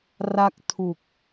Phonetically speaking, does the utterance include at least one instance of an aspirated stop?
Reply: yes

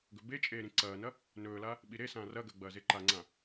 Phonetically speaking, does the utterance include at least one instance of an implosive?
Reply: yes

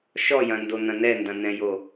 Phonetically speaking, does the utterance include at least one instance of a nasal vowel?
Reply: yes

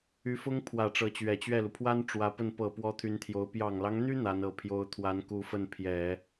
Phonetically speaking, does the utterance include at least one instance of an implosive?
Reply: no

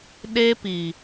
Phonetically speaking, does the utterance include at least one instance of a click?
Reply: no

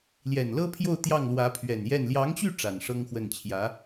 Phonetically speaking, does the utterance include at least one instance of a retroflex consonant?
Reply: yes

